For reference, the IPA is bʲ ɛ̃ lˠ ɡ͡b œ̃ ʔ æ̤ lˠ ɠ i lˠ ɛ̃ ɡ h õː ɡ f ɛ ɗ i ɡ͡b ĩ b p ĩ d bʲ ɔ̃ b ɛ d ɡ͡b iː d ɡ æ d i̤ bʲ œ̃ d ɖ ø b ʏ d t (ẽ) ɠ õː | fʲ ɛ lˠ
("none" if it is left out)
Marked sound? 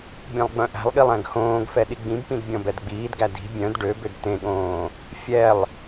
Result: ẽ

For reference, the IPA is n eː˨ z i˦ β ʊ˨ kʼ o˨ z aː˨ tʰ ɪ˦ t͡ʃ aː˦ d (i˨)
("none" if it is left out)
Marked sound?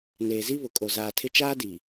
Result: i˨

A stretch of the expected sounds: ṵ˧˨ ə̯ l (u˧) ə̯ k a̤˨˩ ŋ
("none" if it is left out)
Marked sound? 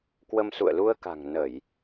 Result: u˧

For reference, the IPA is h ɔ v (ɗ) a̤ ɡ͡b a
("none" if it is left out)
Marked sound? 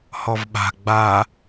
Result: ɓ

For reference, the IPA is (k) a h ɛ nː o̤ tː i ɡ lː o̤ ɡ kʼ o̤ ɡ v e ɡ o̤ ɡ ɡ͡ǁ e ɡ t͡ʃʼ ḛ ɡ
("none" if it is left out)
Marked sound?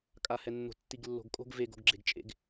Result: kʼ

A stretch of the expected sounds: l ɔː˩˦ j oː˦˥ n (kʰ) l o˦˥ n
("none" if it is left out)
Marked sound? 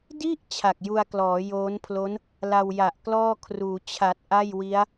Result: pʰ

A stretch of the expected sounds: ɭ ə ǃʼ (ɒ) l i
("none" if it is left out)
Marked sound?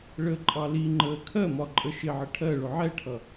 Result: ɑ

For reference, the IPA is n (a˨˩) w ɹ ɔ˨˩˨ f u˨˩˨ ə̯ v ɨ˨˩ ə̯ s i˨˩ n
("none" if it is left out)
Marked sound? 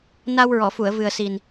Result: a˧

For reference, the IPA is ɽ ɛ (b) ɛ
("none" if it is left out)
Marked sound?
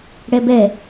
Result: b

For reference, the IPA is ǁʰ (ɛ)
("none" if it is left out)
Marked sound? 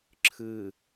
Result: ɨ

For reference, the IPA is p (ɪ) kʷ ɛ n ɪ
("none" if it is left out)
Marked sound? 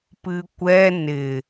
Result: ɨ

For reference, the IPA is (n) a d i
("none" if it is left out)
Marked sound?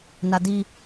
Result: n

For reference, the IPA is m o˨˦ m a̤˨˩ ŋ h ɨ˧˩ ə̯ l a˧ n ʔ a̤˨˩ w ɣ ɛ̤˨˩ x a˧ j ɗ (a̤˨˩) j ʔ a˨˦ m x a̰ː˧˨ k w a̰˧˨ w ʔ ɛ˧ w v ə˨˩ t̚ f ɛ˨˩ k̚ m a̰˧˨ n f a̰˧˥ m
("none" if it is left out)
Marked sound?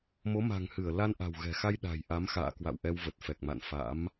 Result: a̤˨˩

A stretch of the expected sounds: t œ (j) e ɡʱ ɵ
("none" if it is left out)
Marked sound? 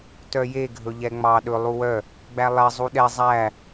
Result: j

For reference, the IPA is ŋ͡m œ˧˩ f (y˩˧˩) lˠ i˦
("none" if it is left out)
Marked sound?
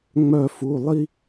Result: u˩˧˩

